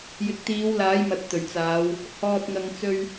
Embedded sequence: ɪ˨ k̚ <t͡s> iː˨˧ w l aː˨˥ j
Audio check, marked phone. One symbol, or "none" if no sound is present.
t̪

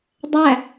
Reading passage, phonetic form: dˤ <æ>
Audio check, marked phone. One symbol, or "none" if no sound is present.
æ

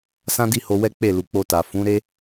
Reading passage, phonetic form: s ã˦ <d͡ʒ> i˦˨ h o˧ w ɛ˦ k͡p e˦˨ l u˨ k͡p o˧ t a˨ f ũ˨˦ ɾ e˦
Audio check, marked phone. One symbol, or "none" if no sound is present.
d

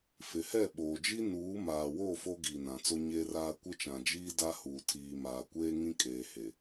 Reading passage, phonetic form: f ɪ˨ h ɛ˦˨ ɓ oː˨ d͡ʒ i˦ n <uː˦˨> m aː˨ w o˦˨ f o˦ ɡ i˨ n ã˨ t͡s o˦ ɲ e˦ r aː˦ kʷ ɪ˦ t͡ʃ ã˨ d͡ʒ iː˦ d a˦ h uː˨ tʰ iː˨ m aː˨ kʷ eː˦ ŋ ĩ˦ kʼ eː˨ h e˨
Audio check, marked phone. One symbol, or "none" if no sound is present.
uː˨˦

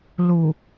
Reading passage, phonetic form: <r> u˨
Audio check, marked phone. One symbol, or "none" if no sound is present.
l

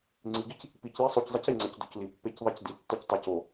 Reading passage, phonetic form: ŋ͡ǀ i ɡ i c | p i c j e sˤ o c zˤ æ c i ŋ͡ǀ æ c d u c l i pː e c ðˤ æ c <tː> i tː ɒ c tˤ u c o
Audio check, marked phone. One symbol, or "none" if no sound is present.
d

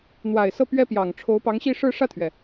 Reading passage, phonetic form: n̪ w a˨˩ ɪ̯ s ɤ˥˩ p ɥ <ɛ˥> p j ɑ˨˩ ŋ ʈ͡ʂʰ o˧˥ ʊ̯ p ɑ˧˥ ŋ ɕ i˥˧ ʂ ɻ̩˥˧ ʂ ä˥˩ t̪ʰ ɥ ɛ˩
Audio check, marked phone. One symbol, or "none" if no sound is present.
ɛ˥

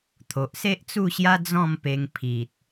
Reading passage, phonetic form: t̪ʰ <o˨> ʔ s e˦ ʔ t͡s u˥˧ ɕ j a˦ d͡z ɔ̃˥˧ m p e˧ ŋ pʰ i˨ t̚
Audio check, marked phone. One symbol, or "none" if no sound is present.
o˨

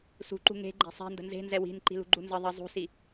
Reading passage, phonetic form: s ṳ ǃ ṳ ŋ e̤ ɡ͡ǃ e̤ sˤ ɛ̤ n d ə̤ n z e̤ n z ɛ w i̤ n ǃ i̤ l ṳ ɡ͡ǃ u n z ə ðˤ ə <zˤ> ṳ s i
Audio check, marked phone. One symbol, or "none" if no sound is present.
zˤ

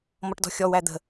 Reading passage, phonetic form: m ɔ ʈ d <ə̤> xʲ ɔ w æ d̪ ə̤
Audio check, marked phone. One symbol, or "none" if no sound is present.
ɔ̤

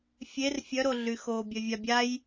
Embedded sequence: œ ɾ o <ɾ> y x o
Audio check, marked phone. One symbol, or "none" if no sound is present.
ɮ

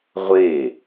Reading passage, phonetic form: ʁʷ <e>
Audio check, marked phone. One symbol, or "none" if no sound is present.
e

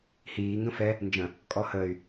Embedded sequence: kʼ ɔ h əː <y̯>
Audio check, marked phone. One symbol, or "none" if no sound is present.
y̯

